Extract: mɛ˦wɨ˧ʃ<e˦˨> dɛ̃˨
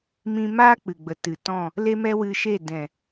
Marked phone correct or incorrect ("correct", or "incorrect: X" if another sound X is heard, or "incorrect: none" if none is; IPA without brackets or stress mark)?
correct